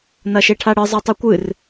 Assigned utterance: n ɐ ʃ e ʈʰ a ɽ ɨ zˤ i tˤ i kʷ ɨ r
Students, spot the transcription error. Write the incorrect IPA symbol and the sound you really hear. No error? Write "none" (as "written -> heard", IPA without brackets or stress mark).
none